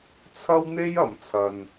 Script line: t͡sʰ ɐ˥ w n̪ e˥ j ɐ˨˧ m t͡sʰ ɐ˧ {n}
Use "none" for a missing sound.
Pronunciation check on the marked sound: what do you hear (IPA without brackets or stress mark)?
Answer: n